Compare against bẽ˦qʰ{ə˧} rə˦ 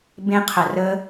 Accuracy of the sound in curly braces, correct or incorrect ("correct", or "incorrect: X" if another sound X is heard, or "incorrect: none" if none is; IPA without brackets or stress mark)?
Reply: correct